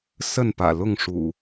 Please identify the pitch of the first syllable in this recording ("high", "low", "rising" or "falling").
falling